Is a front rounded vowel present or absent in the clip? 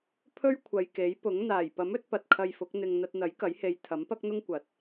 absent